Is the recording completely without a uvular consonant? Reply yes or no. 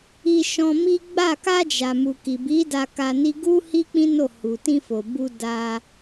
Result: yes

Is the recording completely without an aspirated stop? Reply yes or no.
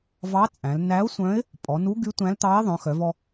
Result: yes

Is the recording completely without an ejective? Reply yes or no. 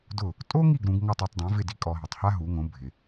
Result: no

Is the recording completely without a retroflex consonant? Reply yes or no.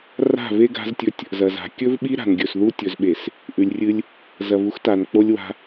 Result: yes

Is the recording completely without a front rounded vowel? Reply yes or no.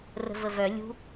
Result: no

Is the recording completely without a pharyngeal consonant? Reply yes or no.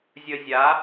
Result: yes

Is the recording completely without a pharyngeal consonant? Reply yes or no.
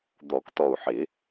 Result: no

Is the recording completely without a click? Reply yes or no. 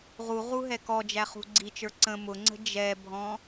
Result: no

